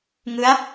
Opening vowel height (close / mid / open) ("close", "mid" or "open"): close